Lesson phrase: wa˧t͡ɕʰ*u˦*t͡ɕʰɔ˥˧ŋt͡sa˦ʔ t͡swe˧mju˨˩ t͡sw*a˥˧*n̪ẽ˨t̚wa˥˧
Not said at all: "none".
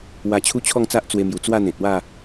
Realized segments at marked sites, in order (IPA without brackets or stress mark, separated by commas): u˦, a˥˧